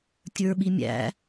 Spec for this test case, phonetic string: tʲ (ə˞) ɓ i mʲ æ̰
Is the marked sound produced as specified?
yes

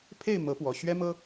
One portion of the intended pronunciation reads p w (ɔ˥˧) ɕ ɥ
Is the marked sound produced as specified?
no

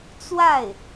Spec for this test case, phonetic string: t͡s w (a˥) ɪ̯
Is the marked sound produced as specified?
no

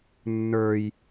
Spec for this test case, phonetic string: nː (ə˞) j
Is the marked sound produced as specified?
yes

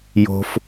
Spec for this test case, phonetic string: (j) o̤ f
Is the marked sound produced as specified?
yes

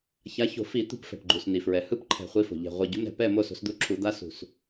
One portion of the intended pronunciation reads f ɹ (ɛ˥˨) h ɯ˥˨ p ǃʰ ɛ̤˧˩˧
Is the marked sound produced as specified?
no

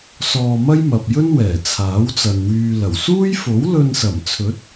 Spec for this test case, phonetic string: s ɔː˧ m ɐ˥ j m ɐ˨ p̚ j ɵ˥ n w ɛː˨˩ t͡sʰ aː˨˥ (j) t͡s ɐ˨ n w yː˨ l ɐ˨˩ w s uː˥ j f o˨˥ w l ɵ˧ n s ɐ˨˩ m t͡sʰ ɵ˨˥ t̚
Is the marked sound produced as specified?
no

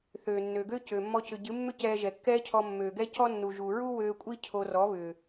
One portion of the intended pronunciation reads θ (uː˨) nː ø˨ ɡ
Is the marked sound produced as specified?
no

